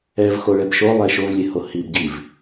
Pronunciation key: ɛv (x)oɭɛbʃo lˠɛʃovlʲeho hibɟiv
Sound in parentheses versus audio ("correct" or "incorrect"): correct